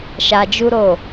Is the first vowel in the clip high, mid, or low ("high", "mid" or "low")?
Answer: low